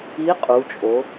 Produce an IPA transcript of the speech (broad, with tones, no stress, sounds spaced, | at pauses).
i˧˥ qʼ u˩˧ t͡ʃʼ o˩˧